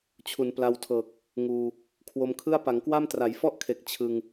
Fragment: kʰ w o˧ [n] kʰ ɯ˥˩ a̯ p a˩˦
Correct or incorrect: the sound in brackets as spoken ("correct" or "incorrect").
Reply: incorrect